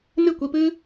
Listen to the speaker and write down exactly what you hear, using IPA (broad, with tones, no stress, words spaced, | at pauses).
nɨ˦˨kʷi˧pɨ˦